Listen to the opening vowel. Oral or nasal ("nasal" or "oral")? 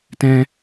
nasal